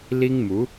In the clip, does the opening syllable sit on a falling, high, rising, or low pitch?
high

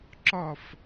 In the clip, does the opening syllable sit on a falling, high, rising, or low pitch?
falling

